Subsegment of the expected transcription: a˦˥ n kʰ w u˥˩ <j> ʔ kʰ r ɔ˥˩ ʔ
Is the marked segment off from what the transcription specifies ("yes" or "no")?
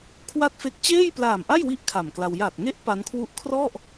yes